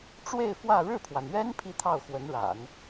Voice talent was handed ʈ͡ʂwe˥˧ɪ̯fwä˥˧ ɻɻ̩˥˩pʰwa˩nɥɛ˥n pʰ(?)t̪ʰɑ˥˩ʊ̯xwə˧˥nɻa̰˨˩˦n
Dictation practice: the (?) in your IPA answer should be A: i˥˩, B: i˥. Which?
B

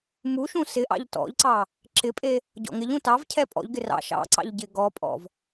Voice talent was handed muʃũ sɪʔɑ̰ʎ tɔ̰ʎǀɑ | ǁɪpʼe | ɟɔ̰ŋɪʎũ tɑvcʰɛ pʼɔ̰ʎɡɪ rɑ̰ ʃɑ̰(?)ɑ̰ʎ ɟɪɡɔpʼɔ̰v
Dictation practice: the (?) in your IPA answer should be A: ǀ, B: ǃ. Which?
A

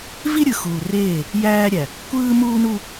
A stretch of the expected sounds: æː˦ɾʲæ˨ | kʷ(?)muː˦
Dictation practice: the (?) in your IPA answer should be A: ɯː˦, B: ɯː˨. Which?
A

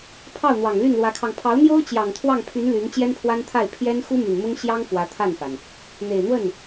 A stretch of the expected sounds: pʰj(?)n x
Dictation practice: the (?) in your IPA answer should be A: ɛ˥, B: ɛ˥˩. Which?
A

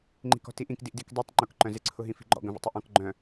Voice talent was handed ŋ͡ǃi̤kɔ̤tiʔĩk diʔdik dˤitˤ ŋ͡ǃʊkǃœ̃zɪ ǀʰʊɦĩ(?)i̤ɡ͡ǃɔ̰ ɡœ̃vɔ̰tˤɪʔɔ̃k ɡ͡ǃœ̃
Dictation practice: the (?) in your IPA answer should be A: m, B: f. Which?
B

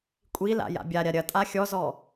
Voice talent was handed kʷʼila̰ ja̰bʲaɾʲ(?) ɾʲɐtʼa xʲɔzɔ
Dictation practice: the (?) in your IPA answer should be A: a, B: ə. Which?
A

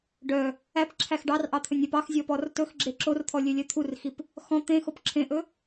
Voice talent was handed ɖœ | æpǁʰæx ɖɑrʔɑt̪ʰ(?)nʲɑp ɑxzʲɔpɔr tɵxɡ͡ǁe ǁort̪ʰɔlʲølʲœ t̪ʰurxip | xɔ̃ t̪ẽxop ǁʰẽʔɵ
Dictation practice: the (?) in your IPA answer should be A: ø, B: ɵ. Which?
B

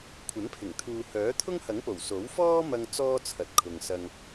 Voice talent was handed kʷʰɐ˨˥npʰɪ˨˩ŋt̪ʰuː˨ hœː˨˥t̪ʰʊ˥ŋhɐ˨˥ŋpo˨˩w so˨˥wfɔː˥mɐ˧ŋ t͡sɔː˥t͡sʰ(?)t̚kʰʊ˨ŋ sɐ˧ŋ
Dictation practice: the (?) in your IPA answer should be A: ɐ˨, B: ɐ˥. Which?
A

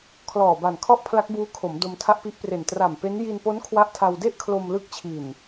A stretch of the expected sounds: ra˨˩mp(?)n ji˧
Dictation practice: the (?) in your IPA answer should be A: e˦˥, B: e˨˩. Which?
A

